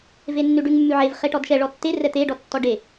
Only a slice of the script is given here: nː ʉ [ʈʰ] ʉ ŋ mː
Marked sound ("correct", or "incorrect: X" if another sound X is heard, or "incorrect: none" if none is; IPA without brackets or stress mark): incorrect: ɖ